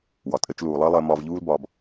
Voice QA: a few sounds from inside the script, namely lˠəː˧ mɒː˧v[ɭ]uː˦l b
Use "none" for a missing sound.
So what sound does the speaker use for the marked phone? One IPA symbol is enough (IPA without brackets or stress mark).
ʎ